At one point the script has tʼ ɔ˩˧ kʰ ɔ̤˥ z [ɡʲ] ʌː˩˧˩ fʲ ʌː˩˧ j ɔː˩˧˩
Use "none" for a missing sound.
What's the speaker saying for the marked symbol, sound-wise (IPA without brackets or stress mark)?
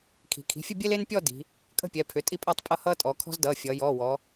d